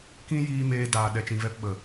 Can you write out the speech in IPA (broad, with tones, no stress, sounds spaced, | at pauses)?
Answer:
k ĩ˧ j iː˦ m eː˧ d aː˨ ɗ ɛ˨ t͡ʃ ĩ˨ v ɛ˧ p ɓ ə˨